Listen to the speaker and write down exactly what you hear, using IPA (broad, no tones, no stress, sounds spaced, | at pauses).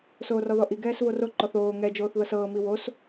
s oː r ɔ ð ɔ ʔ i ɡ ɛː s v o r o ǃ ɔ θ oː ŋ ɛ d͡ʒ oː θ ð ɤ s ɤː m i w o s